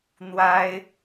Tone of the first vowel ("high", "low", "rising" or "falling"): high